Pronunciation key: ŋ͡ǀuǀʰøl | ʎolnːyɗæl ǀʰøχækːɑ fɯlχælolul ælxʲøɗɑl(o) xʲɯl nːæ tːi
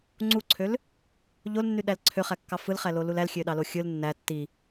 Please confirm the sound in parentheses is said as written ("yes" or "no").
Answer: yes